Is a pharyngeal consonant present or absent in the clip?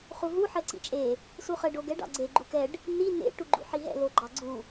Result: present